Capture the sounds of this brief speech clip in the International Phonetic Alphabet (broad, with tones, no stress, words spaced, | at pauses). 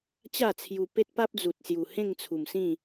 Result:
t͡ɕa˥˧t͡sʰju˧ pe˦t̚pa˦p̚d͡zu˨t̚sju˨˩ hẽ˥˧ŋt͡sʰu˨˩msĩ˥˧